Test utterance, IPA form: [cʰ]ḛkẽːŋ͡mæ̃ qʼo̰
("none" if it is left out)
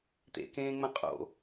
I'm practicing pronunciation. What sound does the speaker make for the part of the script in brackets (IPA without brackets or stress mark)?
t̪